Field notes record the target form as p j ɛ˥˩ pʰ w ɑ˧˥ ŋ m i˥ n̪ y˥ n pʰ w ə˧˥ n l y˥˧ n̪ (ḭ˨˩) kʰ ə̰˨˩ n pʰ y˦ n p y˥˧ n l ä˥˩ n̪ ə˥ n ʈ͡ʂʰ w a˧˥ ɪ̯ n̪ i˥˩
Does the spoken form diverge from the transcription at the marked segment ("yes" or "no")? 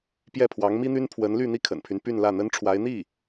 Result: yes